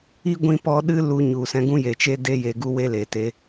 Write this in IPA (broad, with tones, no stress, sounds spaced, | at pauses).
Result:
i˦ ɡʷ ĩ˧ p ɔ˧ ɗ ɨ˦ l u˧ ɲ u˨ s ɛ̃˧ ɡ ũ˦ j e˨ t͡ʃ e˦ d e˦ j e˧ ɡ u˦ w e˦ l e˨ t e˧